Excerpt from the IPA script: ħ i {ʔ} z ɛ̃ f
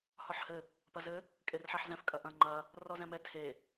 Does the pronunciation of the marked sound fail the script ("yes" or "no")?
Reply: yes